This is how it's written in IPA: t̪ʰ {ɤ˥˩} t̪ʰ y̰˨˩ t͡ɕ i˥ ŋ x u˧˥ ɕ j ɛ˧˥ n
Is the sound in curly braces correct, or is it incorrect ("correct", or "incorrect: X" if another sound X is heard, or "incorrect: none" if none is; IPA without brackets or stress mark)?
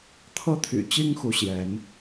incorrect: ɤ˥